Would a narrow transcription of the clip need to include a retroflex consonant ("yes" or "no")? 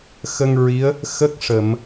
yes